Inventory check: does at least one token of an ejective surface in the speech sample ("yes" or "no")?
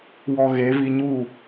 no